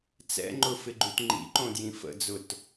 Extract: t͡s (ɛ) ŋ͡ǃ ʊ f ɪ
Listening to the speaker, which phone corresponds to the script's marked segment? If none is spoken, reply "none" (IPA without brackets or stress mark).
ɛ̰